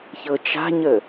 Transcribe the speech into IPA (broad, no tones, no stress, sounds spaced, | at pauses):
ç ɤ t͡ʃ a̤ ɲ ə